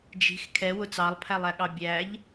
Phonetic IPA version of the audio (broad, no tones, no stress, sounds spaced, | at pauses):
d͡ʒ i̤ x kʰ ɛ w ʊ t͡s ɑ lˠ pʰ æ lˠ æ ɠ ɑ bʲ æ ʎ